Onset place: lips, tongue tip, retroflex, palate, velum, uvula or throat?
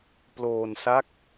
lips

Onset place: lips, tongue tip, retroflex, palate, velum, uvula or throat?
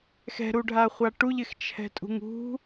velum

